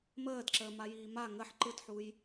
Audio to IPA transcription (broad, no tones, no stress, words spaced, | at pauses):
məːdǁəːmajiː ma ŋəħ ǃɯtħuj